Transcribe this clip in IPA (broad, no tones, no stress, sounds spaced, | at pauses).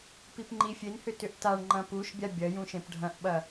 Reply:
p i p ŋ͡ǃ i fʲ e n h ʏ t ʏ ʔ t a ɳ ŋ͡ǃ ɐ̃ p u ʃ bʲ a bʲ ɐ j ũ ʃ ẽ p ɖʱ ɐ̃ ʔ ɓ ɐ